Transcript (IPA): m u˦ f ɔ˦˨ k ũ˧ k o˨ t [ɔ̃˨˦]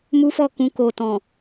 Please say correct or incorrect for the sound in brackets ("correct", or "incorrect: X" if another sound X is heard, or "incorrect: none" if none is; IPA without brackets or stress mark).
incorrect: ɔ̃˨